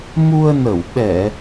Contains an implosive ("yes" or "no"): yes